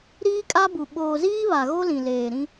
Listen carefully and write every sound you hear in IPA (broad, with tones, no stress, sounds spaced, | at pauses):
ɾ iː˦ kʼ a˦ b u˨ ɓ oː˨ z iː˦ β a˨ ɣ o˦ l ĩ˨ l eː˨ ɾ ĩ˦